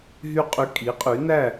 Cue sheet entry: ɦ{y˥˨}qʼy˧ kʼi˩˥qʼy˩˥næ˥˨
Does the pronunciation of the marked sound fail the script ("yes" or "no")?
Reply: no